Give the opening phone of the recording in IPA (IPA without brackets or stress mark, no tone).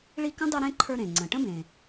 ɭ